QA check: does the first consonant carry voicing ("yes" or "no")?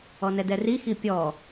yes